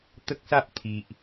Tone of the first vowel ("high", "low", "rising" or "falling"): high